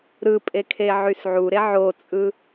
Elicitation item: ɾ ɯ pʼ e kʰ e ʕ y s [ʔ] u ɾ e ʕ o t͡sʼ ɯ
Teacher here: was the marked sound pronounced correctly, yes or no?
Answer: no